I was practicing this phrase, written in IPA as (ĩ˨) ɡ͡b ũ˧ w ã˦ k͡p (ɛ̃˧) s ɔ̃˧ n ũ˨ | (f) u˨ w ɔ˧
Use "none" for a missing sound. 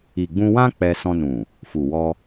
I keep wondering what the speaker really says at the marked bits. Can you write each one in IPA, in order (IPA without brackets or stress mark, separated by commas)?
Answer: i˨, ɛ˧, f